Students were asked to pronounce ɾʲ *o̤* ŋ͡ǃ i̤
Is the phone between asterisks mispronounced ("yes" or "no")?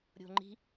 no